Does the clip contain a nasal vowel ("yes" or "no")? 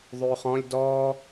yes